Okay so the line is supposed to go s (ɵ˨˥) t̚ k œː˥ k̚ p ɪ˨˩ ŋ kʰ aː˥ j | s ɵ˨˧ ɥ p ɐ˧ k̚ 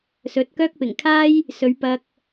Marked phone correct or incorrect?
correct